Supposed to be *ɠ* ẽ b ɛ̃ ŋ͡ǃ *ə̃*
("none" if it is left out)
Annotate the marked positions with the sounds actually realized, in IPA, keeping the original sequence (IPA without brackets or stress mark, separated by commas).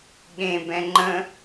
ɠ, ə̃